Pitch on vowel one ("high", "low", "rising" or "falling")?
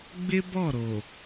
high